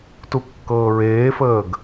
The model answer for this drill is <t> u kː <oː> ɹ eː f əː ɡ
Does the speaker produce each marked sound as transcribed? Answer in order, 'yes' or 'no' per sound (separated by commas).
yes, no